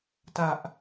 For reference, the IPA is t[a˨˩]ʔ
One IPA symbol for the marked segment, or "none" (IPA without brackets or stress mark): a˨˩